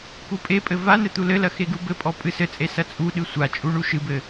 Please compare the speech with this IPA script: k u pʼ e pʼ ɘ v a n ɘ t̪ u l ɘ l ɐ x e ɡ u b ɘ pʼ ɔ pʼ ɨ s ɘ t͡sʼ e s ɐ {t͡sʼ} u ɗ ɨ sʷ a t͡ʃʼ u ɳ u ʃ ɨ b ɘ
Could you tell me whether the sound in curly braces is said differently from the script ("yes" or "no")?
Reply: no